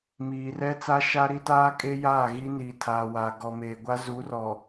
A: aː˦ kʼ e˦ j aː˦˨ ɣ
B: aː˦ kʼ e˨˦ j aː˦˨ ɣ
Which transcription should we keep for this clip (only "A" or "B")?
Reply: A